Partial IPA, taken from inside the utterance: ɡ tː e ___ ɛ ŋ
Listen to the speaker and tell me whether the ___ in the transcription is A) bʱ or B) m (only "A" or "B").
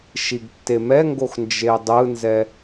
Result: B